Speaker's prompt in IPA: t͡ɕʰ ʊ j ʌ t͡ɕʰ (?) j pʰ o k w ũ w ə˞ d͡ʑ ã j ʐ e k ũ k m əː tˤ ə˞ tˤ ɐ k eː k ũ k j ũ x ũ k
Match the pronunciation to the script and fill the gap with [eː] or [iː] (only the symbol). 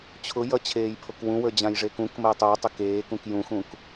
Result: eː